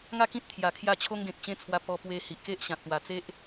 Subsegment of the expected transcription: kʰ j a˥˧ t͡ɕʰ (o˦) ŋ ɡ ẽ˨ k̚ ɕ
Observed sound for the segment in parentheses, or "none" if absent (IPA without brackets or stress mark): o˦